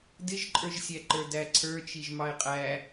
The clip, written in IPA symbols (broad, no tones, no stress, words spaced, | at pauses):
dɪʒǃʼə˞ʒsʲæǃə˞ dæǀʰə˞t͡ʃiʒ mɑɪ̯qʼæ